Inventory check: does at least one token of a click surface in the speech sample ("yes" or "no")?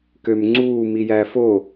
yes